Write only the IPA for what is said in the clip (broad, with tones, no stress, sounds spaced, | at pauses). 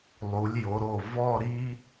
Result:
lˠ u˩˧ lʲ j o˩˧ ɾ o˧˩ v ɔ˥˧ ɾ i˥